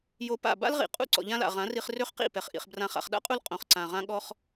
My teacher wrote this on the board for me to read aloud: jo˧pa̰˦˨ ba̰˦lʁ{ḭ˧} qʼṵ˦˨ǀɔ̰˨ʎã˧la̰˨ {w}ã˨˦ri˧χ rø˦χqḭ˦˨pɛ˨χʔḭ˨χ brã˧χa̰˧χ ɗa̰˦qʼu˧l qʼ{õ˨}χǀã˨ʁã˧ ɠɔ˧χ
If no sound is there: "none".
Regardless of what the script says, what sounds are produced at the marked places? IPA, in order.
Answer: ḭ˨, ʁ, õ˨

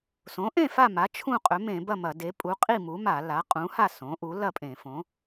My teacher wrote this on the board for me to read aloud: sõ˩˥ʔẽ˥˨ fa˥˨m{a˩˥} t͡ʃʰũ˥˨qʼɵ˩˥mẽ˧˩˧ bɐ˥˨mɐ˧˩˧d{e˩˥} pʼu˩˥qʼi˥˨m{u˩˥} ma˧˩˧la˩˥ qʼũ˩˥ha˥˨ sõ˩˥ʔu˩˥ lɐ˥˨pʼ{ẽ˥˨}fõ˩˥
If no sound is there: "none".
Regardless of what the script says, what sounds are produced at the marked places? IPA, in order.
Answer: a˩˥, e˩˥, u˩˥, ẽ˧˩˧

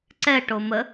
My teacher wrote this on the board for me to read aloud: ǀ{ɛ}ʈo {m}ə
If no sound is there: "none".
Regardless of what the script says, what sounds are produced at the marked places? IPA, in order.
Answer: ɛ, m

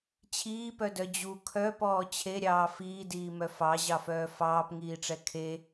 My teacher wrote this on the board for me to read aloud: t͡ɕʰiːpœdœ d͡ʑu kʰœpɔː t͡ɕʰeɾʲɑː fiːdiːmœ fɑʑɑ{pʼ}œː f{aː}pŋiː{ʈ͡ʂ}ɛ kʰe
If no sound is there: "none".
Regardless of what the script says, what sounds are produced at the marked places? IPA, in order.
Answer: f, ɑː, ʈ͡ʂ

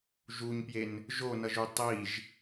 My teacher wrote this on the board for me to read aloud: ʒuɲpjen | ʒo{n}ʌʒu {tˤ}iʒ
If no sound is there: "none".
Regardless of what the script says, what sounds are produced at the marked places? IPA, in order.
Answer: n, tˤ

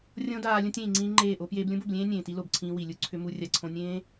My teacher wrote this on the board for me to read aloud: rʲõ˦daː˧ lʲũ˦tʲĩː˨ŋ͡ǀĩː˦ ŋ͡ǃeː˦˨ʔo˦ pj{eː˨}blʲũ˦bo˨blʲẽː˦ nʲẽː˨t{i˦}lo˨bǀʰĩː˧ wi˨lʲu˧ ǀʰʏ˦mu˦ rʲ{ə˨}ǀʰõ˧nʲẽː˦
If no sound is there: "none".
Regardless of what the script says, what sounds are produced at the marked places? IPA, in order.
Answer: eː˧, i˦, a˨

